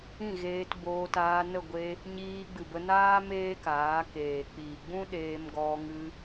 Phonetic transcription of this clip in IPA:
ĩ˦˨ɣeː˧t boː˧taː˧nə˦˨ ɡʷe˧ | ɲiː˧ɡ͡bɨ˨bə˧naː˦ meː˦kaː˨˦keː˨ k͡piː˨ɡ͡bũ˦ ɗeː˧mɡɔ˧ŋɨ˧

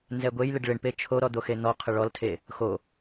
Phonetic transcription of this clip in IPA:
nzɛɡʷejlɪɖ ɭɪɳpe t͡ʃʰoɾɔ d̪oxen̪ɔqʰə ɭɔltʰe | xo

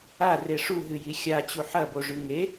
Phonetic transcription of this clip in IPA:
a reʂuɦɨ jixʲat͡ɕu ħɐboʐʉ ŋe

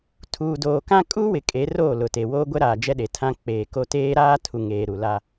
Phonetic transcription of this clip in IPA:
tʰuː˨doː˨kã˦ kʼuː˦wɪ˨ kʼe˨˦roː˦˨ lʊ˨te˨ woː˦ɡʷɛ˦ɾaː˨ d͡ʒɛ˦ɗe˨tʰã˦ k͡peː˨ko˦ teː˦ɾaː˦tʰu˨ŋeː˨ ɾu˨la˦

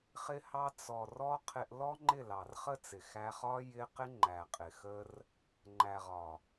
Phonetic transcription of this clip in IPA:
χɪ˦hɑ˦ t͡sɔ˨rɔ˧ qʰɪ˧ʔ lɔ˦ ŋ͡ǃɪ˦˨lɑ˨rχə˦t͡sɪ˨ xæ˧χɒ˦ jɪ˦ qɪ˦ ŋ͡ǃæ˨qʼɪ˨xə˦r | ŋ͡ǃæ˨ʁɒ˨

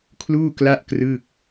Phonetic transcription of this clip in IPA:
kʰluː˥˩kla˥˩ʔkrɯ˥˩k̚

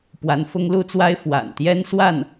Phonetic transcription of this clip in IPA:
pwa˧˥nfʊ˥ŋlu˥t͡swa˥ɪ̯ fwa̰˨˩nt̪jɛ˥nswa˥˩n

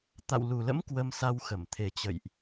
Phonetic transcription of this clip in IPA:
t̪a̰˧˨wlu˨˩lə̰˧˥m kwə˧msa˧wxə˧˩m t̪ʰe˨˩t͡ɕə̰˧˨jʔ

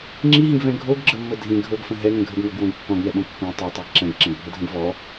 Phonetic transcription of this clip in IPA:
ŋ͡ǁiɦĩɡvɛ̃ ɡʱoɡɡ͡ǁəmːə dʱĩ ɡʱɤɡfə̃ ɦɛŋə̃ ɡʱəɡŋɤɡwõɡ kːɔ̃ɡŋɛɓõ kːõ tˤɛtˤiɡ ǁɛ̃ɡǁɛ̃ɡbʱədʱə̃ɡ vɔ

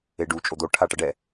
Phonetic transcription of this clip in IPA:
eɖu t͡ʃʼod̪o ʈʰaʈʌɖɛ

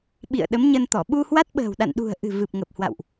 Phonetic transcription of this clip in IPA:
ɓḭ˧˨ə̯ɗə˨˦mɲə˧nt̪ɔ˧˩ ɓu˧hwa˦˥t̚ɓə̤ː˨˩wɗa̰˧˨n ɗṳ˨˩ə̯ʔɨ̤˨˩ vɨ˨˩p̚ŋə˨˩p̚hwa̰˧˨wʔ

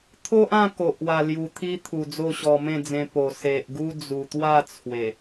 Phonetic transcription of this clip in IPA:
t̪ʰo˦ʔã˥˧ ko˨ʔwa˨˩lju˨˩ t̪ʰi˦ t̪ʰu˨˩d͡zo˥˧ɕɔ˧ mẽ˥˧d͡zẽ˧ po˨˩ se˨ʔɡu˦ d͡zu˨˩t̪wa˥˧ t͡sʰwe˨˩

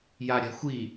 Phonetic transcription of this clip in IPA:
jaɾʲa̤xʷi

